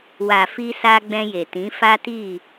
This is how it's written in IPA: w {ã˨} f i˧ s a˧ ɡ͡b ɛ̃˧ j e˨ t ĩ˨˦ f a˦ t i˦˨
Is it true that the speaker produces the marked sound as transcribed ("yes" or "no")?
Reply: no